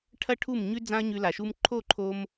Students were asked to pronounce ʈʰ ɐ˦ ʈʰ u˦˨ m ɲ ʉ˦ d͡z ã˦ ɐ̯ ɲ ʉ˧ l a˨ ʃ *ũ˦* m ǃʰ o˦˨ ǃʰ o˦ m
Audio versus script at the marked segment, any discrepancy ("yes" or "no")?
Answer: yes